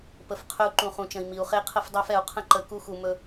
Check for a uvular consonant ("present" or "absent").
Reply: present